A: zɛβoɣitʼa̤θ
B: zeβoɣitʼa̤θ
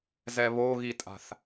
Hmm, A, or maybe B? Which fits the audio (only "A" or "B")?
A